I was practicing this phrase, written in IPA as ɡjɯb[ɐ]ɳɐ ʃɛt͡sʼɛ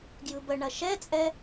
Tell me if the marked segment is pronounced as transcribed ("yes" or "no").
no